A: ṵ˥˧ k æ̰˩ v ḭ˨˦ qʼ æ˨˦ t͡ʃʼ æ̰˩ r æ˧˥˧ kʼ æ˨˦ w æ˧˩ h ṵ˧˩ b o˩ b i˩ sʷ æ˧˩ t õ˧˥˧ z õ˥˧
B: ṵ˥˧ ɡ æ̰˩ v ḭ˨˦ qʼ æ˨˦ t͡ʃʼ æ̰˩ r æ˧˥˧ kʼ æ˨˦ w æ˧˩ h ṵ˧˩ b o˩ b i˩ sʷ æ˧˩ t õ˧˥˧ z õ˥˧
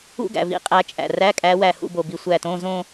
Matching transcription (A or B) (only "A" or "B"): B